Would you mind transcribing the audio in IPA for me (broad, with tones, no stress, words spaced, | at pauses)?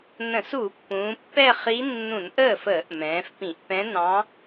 nə̃˧˩˧s u˧˩˧ pːũː˩˧pːɛ˥˧χi˧˥ nːũ˧˩˧nʔəː˥˩fəː˧˩˧ʔ mɛ̃ː˩˧fpĩ˧˩˧ʔpɛ̃˧˥nɑ̃˧˥